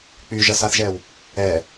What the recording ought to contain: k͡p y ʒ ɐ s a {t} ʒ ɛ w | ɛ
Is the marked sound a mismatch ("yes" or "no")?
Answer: yes